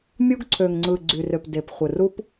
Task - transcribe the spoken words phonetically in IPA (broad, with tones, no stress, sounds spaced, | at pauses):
mʲ u˦ ɡ ǀʰ ø˨ ŋ ŋ͡ǀ ɯ˨ ɡ͡ǀ y˨ r ø˨ p d e˨ p χʷ ɯ˨ r u˦ p